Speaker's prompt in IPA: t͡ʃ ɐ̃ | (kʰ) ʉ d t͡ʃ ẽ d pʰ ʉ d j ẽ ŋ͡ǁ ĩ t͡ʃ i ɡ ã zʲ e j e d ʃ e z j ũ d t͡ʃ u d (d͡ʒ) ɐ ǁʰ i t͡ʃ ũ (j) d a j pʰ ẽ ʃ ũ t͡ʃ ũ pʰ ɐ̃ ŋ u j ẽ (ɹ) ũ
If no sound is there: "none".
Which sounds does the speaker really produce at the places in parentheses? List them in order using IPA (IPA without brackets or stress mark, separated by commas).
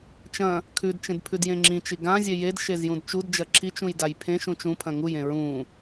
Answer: kʰ, d͡ʒ, j, ɹ